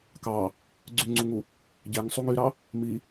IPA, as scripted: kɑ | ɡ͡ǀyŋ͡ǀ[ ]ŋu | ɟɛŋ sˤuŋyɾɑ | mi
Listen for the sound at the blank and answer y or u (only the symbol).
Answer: u